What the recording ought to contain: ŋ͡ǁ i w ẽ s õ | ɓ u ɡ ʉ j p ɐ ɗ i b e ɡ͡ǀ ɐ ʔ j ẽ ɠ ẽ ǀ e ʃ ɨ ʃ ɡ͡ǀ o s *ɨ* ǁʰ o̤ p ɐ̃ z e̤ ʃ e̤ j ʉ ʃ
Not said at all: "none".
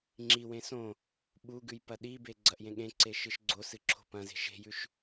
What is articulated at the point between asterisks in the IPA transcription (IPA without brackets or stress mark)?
ɨ